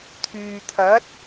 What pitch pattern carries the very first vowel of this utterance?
low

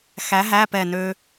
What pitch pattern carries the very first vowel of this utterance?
rising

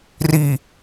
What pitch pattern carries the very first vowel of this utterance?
low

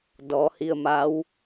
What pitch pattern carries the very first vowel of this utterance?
rising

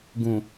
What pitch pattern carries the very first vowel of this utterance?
low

